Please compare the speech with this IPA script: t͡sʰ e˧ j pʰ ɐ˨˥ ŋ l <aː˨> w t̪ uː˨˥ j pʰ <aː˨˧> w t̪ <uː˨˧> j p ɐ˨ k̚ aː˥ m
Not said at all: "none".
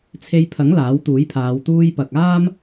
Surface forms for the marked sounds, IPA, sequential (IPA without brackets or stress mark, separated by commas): aː˨˥, aː˨˧, uː˧